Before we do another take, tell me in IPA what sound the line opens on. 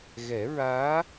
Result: ɣ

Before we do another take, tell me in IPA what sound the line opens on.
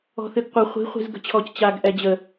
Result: ɔ̤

